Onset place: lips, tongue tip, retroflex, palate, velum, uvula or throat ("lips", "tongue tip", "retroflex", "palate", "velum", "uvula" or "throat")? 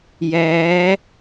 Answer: palate